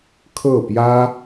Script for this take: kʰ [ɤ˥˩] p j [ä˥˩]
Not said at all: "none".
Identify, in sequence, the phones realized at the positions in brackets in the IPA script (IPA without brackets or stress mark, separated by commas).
ɤ˥˩, ä˥